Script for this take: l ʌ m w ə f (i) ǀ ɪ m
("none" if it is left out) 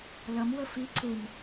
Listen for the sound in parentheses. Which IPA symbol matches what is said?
i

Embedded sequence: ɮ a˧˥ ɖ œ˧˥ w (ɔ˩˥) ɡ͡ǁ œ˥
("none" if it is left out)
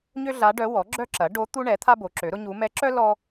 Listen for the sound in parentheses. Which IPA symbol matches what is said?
ɔ˩˥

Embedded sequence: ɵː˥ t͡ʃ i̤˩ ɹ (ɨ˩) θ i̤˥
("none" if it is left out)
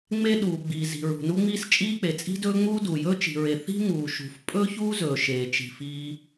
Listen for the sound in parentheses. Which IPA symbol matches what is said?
e˩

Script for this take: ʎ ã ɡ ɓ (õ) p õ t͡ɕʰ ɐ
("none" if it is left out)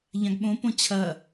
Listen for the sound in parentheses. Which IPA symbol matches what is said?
õ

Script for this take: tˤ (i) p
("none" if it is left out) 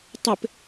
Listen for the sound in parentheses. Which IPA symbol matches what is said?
ɪ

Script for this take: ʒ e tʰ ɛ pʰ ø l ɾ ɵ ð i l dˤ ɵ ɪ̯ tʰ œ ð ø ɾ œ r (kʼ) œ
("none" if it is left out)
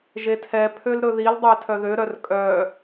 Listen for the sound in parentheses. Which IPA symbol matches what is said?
kʼ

